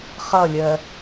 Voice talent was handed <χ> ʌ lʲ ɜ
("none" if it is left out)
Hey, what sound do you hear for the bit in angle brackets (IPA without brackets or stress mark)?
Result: χ